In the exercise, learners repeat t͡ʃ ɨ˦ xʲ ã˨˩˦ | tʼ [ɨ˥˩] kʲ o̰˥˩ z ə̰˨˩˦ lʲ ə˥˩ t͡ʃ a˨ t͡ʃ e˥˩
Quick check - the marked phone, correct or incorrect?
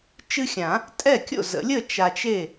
incorrect